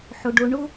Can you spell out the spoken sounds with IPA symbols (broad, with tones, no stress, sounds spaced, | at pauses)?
ħ ʊ˩ ɖ ʊ˨ ɳ ʊ˦